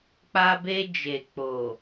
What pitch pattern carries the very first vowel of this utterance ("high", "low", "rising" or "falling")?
high